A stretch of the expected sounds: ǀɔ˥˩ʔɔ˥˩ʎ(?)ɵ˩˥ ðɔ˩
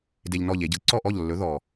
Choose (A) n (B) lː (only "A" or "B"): B